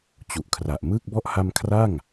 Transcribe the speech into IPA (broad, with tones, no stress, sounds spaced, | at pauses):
t͡ɕ u˨˩ ʔ kʰ r a˨˩ ʔ m ɯː˥˩ k̚ b ɔ˥˩ ʔ h a˧ m kʰ r a˥˩ ŋ